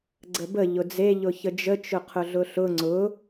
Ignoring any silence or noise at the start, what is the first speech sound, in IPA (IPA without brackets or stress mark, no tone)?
ɡ͡ǀ